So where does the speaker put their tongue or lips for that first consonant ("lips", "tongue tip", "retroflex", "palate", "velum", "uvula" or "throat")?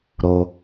tongue tip